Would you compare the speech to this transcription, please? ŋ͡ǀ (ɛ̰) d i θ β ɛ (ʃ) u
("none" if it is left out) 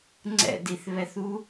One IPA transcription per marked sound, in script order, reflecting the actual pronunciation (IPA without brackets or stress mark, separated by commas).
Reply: ɛ̰, θ